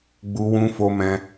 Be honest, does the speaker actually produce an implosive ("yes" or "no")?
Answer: no